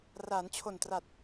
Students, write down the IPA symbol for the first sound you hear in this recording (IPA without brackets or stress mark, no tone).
r